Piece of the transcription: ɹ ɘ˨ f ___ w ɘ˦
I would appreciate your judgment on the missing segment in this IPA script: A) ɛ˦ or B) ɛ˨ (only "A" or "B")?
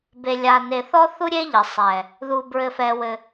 B